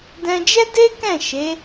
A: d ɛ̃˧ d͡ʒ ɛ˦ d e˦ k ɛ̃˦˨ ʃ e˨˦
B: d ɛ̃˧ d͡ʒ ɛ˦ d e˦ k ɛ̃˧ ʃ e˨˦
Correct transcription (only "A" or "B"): A